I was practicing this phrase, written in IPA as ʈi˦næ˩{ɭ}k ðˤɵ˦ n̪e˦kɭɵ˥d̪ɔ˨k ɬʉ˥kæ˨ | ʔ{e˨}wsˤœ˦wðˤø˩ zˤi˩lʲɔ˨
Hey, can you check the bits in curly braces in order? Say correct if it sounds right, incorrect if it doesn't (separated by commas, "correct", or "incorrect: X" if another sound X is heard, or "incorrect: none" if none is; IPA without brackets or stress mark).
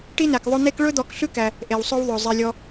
incorrect: none, incorrect: e˩